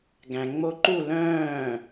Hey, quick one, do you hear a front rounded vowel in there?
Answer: yes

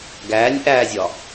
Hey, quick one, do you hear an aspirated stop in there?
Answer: no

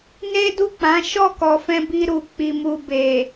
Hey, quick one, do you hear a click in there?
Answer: no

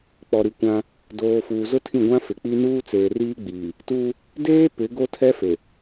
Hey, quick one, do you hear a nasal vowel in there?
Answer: yes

